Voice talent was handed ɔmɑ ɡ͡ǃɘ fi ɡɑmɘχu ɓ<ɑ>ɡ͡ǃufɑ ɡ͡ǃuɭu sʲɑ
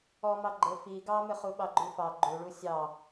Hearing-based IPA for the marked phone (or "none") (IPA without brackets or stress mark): ɑ